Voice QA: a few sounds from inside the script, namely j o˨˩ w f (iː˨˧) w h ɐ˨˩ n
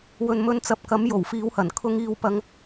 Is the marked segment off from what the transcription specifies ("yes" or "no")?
no